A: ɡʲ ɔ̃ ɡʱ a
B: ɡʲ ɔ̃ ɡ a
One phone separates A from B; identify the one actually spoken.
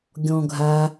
A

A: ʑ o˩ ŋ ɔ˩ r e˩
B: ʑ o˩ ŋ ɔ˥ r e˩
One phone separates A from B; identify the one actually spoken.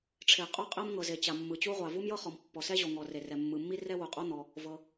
A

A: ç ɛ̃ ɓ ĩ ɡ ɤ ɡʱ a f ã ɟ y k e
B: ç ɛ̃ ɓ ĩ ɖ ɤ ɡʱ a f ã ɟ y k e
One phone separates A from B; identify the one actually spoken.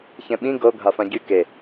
A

